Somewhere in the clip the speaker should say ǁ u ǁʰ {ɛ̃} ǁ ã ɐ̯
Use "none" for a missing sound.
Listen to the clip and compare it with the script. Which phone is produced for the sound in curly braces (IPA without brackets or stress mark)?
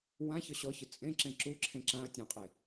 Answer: ẽ